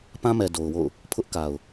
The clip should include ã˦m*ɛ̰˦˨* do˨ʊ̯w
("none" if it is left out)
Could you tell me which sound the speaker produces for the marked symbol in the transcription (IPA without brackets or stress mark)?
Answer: ɛ˨